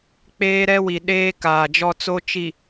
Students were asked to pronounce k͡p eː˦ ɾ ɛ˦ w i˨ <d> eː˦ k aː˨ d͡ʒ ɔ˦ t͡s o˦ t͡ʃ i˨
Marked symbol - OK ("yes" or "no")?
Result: no